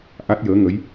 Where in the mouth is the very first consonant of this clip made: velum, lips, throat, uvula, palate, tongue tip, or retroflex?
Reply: throat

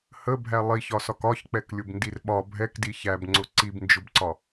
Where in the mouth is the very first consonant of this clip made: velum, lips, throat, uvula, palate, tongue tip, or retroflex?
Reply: throat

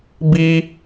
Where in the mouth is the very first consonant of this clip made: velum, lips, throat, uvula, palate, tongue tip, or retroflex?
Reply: lips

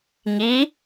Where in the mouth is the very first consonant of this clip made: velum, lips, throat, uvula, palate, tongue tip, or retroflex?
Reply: velum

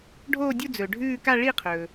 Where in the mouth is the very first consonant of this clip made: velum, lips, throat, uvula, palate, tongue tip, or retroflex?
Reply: retroflex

